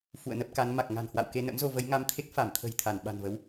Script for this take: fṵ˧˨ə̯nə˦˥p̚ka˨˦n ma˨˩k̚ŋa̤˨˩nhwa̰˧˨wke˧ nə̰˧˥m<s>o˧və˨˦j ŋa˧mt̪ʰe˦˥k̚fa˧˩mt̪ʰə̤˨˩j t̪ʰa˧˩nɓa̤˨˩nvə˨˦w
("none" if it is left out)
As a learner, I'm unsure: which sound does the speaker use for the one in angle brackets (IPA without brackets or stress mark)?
z